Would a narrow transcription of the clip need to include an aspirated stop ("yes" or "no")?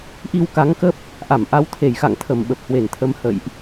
yes